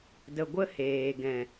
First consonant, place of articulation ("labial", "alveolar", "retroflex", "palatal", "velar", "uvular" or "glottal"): alveolar